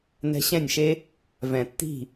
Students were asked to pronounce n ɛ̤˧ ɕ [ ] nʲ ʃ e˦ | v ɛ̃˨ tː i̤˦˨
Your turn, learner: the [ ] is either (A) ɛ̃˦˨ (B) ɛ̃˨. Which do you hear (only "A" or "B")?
A